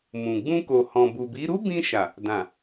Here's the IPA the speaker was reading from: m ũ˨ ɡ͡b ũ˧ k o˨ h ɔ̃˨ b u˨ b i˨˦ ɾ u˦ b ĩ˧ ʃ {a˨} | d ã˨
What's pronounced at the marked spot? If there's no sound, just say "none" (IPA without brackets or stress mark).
a˨